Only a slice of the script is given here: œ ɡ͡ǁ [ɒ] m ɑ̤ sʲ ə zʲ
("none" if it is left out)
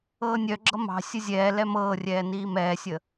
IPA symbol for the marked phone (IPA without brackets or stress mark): ʌ